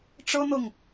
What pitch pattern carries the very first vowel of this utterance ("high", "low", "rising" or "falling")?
high